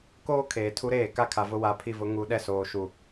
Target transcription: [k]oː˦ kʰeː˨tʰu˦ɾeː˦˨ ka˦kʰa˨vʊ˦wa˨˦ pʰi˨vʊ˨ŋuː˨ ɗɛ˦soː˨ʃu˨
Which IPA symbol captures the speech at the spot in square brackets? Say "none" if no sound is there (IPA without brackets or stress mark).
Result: k